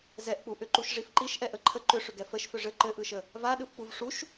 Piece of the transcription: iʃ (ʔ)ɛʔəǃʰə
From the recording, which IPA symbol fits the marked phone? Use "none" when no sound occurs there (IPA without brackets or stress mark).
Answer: ʔ